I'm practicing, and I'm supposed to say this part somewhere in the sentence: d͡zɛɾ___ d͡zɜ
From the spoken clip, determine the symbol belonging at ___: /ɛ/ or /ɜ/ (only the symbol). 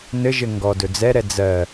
ɛ